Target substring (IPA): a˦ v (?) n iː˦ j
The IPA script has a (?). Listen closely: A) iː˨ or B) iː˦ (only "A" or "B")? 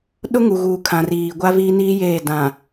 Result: B